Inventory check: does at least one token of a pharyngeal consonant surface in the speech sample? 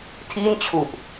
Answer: no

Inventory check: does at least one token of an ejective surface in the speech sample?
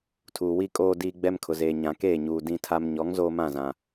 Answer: yes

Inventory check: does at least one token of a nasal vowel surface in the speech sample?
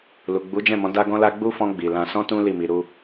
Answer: yes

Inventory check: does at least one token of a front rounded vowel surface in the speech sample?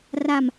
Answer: no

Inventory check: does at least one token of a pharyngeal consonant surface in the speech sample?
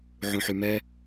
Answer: yes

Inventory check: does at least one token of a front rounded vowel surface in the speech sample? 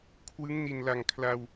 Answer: no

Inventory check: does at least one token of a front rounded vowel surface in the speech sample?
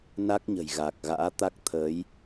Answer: no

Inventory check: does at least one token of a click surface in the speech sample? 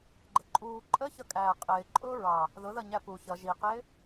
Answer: yes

